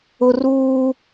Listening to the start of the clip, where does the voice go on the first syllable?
high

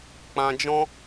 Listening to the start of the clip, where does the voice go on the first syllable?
low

